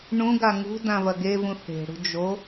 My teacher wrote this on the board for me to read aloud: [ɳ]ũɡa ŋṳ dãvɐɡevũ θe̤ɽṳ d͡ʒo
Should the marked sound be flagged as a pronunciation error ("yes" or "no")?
no